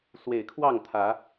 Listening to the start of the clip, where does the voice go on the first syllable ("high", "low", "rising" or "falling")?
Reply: low